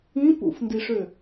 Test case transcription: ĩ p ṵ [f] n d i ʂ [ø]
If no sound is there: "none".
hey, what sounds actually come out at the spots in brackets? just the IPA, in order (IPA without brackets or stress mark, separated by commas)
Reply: f, ø